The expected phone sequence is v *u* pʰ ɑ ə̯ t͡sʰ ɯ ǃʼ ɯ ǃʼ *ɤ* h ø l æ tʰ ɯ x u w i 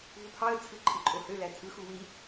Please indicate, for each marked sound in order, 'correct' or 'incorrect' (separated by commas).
correct, incorrect